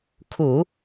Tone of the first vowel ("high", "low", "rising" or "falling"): low